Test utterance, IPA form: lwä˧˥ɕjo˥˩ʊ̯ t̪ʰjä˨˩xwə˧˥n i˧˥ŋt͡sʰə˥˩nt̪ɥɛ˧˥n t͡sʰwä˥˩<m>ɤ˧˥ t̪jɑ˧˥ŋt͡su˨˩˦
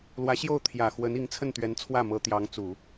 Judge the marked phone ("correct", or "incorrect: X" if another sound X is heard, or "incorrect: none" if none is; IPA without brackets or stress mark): correct